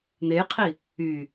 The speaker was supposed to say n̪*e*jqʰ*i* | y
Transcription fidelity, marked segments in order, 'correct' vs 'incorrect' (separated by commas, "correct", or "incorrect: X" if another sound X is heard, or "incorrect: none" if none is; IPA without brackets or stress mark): correct, correct